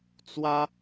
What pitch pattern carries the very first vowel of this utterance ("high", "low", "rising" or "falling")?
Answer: high